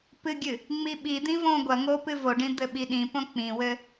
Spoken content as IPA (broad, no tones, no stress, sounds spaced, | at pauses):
p ɨ ɡʲ ɨ | ŋ͡m i ɓ i d̪ ĩ v õ ɡʷ ɐ ŋ o p ɨ v o ɖ ĩ d̪ ɘ ɓ i ɗ ĩ p õ k͡p ĩ w ɘ